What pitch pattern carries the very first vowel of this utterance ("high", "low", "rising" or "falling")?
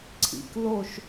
low